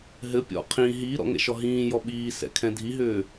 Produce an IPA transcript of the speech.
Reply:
ɦ ɘ pʲ ɔ̰ qʰ ĩ ɦ iː ɾ ɔ̰ ŋ ɛ̰ ʃ ɔ ɦ ĩː j ɔ ɓ iː s ɛ̰ kʰ ɛ̃ dʱ i ɦ ʏː

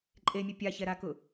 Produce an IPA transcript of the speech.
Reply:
ǃʼ e mʲ ʊ pʲ a ç ɛ ɾ a k ʊ

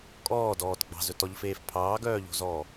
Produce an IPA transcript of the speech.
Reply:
kʼ ɔː d ɔː t ɡ͡b ɑ̤ z ɵ t ɔ ʎ f eː f pʰ ɑː ɡ œː ʎ o̤ z ɔː

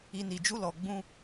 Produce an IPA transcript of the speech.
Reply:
i˨ n i˨ d͡ʒ u˧ l ɔ˨ ɡ͡b ũ˧

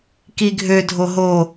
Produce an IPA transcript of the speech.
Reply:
k i ɡʱ ø dʱ o ɦ o

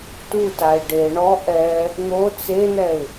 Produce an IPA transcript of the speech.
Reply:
t u t a ɪ̯ ɖ e ɳ ɔ ʔ ɛ | n̪ o t͡s e n̪ ɛ ɪ̯

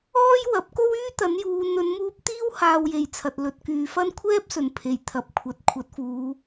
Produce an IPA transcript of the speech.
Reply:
ɔː˥ j w ɐ˨˥ p̚ k o˥ w yː˥ t̪ ɐ˨˥ n j uː˨˧ n̪ ɵ˨˧ n m uː˧ p̚ t̪ iː˥ w h aː˧ w j e˨ j t͡sʰ ɐ˨ t̚ l ɵ˨ t̚ k yː˨ f ɐ˥ n kʷʰ ɛː˥ p̚ s ɵ˨˩ n pʰ e˨˩ j t̪ʰ ɐ˨ p̚ kʷʰ ɐ˨˥ t̚ kʷʰ ɐ˨˥ t̚ f uː˨˧

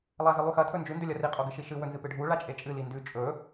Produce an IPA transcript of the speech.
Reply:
lˠ a z ɨ lˠ ʉ x ɐ tʰ ɵ n d͡ʒ ʉ n d ɵ lʲ ɐ r i qʼ o ɡ ɨ ʃ i ʃ ɨ w ɵ n z ɨ p ɨ ɖʱ u ɭ a t͡ʃʼ e t͡ʃʼ ɨ l i n d ʉ t͡ʃʼ ɵ

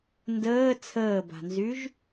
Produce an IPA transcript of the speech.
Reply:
n d əː t͡sʰ əː b a̤ n z y ʒ

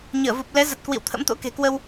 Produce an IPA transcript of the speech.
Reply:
ɲ əː˧˩ v u˨˩ p̚ l ɛ˨˦ z ə˨˩ t̚ k w ḭ˧˨ w t̪ʰ ə̰˧˥ m t̪ o̰˧˥ k e̤˨˩ k w ə˧ w

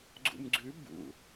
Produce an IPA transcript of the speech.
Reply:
ɡ͡ǀ ṵ m ɡ͡ǀ ʉ b ṵ

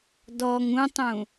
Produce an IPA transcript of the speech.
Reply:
d ɔ ŋ ũ tˤ ũ

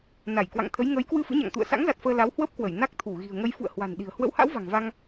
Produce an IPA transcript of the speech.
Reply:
n a˧˩ j k w a̰˧˨ ŋ t̪ʰ ə˨˦ j ŋ ə˨˦ j k w ɨ˧ f ɨ̰˧˥ ɲ a̰˧˨ ŋ t̪ ṵ˧˨ ə̯ s a̰˧˥ ŋ z a˨˩ t̚ f əː˧ l a˨˦ w h w ə˦˥ p̚ k w ə˧˩ j n a˦˥ k̚ t̪ʰ u˧˩ ɣ i̤˨˩ ə̯ ŋ ə˧ j f ṵ˧˨ ə̯ h w a̤˨˩ n ɗ i̤˨˩ ə̯ h w ə̰˧˥ w h a̰˧˥ w v a̤˨˩ ŋ v a˧ ŋ

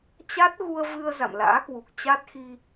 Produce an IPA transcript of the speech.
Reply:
t͡ɕ a˦˥ t̚ ɣ u˧ ə̯ v ɨ˧ ə̯ z a̰˧˨ m l a̰ː˧˥ k w u˨˩ k̚ t͡ɕ a˦˥ t̚ x i˧

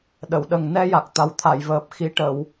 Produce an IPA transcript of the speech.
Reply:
ɗ ə˨˩˨ w ɗ ə˨˩ ŋ n ɛ˧ j a˨˩ k̚ t̪ a˨˩ w t̪ʰ a˨˩˨ j v əː˨˩ p̚ x i˧˥ ʈ ə˨˩˨ w

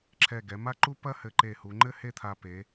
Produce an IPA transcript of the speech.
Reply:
ǁʰ ɛ˧˩ ɡ ɛ˩˧ m a˥ ǃ u˥ p ɐ˥ h ɘ˧ ǃ e˧˩ h u˩˧ ŋ͡ǃ ɘ˥ h e˥˧ t̪ʰ a˧ p e˩˧

